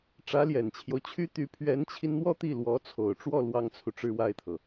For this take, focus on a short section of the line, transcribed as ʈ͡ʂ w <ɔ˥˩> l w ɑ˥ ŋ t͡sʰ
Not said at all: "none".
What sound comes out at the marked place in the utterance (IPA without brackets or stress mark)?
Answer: ɔ˥˩